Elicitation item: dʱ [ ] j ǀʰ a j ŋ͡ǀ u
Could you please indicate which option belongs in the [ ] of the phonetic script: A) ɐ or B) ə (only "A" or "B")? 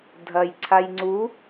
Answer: A